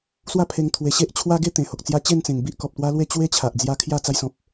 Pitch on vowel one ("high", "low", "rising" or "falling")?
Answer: falling